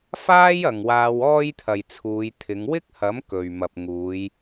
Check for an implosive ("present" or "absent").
absent